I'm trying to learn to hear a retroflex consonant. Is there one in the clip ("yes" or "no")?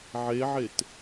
no